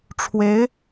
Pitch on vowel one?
rising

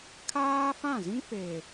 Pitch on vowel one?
high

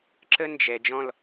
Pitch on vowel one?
high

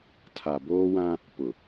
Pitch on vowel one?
low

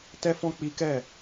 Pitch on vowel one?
high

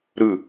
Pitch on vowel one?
falling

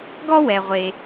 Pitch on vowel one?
high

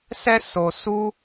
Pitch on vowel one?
high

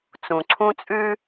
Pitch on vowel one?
low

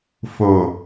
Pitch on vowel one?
low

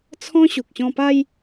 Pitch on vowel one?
high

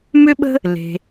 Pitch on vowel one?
high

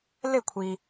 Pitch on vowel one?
falling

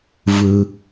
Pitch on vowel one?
low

